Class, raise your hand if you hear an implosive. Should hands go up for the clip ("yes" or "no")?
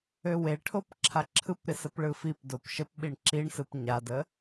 yes